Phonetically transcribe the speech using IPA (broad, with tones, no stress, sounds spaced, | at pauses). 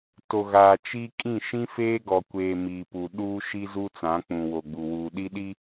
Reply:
t o˨ ɣ aː˨ t͡ʃ i˦ kʼ ĩ˦˨ ʃ ĩ˦ f eː˦ ɡ ɔ˨ kʷ eː˨ m i˨ p u˨ ɗ uː˦ ʃ i˦ z u˦ t͡s ã˨˦ k͡p ũ˨ w o˨ ɡ͡b u˨ w uː˨ ɗ i˦ ɗ i˦